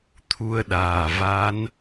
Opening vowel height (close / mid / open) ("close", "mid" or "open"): close